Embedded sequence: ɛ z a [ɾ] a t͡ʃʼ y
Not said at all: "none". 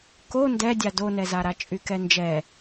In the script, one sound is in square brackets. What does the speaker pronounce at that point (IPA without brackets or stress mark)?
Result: ɾ